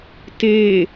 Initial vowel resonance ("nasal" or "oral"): oral